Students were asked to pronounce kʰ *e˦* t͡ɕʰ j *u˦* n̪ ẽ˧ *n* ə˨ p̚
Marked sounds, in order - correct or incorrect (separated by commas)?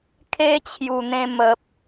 correct, incorrect, incorrect